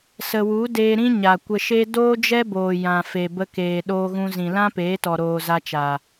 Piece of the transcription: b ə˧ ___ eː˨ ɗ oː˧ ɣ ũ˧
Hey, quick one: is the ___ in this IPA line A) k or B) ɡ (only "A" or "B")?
A